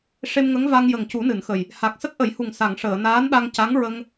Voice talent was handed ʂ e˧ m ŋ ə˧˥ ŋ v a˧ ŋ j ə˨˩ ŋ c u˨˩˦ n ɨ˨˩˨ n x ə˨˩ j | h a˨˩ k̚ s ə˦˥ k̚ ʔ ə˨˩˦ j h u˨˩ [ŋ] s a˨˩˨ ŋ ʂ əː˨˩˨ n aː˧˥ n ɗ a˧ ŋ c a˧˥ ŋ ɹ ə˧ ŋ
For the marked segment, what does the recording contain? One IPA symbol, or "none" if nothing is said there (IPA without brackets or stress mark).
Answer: ŋ